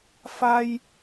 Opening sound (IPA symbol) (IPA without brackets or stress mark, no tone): f